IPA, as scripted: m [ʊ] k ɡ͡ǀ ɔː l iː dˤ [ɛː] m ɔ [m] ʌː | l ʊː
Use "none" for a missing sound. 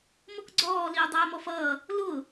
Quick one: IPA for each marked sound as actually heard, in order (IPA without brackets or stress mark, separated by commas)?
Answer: ʊ, ɛː, f